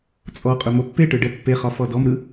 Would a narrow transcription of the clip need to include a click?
no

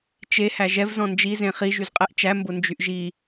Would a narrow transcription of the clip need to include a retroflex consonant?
no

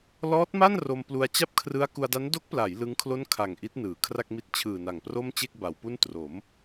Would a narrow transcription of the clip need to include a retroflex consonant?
no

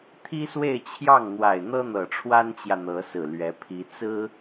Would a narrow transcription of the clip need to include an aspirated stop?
yes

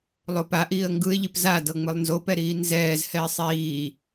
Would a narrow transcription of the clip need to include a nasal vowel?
no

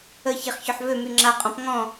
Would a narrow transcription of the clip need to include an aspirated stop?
no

